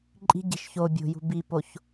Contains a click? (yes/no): yes